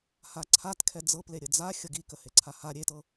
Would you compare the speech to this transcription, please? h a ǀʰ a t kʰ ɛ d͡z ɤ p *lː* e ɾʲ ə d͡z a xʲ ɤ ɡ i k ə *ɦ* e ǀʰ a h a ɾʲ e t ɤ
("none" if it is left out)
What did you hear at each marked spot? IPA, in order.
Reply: l, h

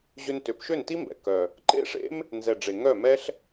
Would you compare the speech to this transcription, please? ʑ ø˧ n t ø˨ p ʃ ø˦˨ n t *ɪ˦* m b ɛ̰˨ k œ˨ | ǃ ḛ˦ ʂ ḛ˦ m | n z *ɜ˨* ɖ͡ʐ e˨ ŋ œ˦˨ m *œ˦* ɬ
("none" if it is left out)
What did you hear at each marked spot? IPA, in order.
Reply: i˦, ɛ˨, ɛ˦

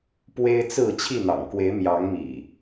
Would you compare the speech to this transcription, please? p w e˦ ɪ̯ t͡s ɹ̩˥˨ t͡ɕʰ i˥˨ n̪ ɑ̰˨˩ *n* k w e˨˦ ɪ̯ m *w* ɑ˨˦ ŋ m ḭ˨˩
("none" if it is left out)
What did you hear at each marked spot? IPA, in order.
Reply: ŋ, j

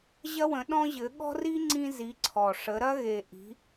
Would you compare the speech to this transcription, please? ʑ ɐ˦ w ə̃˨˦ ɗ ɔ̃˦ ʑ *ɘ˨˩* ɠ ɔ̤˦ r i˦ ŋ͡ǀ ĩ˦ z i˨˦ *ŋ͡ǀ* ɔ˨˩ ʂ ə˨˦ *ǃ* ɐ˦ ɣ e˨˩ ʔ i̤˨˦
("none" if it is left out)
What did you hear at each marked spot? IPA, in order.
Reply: ɘ˨˦, ǀʰ, ɾ

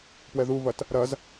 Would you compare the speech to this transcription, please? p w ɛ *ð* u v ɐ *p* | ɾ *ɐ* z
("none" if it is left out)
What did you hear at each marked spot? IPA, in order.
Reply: ð, t, ɐ

